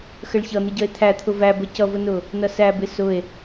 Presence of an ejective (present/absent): absent